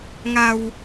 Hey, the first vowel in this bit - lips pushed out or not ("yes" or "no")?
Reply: no